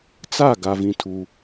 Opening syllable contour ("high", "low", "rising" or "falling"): falling